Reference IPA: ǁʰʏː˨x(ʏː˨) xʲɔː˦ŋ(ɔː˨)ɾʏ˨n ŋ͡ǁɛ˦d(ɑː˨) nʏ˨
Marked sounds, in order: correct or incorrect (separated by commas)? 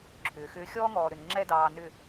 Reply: incorrect, correct, correct